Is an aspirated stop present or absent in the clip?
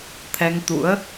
present